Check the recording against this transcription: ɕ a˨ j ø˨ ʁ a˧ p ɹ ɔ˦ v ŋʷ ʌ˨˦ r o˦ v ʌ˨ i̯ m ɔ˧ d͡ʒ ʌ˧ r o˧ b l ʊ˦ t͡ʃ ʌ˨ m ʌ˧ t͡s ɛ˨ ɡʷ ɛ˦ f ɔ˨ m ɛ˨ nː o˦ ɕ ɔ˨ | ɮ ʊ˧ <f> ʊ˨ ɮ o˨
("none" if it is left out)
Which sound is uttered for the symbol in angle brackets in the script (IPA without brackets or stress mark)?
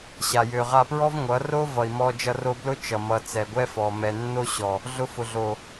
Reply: f